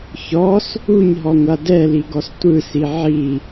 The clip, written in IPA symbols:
ç ɔ s | u ɲ ɦ ɔ ŋʷ a d ɛ l i ɡ ɔ s tʷ ɯ s i ʕ i

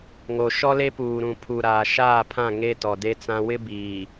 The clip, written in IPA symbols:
ŋ o˨ ʃ ɔ˦ l e˦ p uː˨ ɾ ũ˨ pʰ u˨ ɾ aː˨ ʃ aː˦˨ pʰ ã˦˨ ŋ e˦ t ɔ˨ d e˦ t͡s ã˦ w ɪ˦ b iː˨

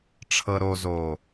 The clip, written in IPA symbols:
ʈ͡ʂʰ ɤ˨ ɾ o˨ z o˨

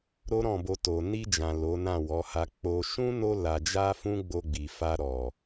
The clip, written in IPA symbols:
ɾ o˦ ɾ ɔ̃˦˨ b o˧ t o˨ n i˧ d͡ʒ ã˨ l o˨˦ n ã˦˨ w ɔ˨˦ h a˧ k͡p o˧ ʃ ũ˦ n o˧ l a˨ d͡ʒ a˧ f ũ˦ ɡ͡b o˧ ɡ͡b i˨ f a˧ ɾ ɔ˨

